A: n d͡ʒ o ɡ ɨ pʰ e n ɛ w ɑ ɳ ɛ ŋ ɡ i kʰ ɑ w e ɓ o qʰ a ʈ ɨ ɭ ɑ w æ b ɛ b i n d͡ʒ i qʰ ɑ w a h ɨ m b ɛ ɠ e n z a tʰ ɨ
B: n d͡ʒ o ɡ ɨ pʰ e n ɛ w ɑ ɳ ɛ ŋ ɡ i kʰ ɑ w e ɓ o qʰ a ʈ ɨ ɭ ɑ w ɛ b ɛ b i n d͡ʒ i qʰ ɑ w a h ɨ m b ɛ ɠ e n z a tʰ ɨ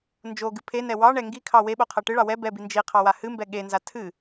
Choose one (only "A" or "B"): B